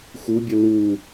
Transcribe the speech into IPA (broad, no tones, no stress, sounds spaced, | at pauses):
x u bʲ ə l u